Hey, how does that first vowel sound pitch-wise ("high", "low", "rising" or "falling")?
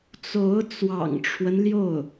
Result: rising